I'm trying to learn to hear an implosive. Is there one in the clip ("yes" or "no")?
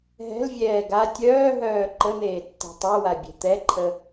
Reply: no